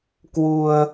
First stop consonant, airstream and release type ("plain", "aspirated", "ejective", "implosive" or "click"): plain